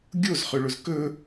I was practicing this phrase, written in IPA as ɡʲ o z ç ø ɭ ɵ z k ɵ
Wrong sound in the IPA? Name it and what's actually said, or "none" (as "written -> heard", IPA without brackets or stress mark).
ç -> χ